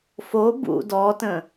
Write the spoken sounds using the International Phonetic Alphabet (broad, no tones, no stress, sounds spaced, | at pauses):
f o b ṵ d ɔ t ə̃